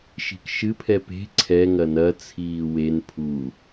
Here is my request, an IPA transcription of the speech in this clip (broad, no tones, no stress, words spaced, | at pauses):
ʃi̤kʃɨpʰɛ pe̤ ǀʰɛ ŋɐnɐ t͡sʰiːwen pʰu